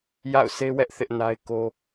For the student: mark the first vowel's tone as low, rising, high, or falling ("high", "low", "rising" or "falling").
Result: falling